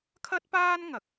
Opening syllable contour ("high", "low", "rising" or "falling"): high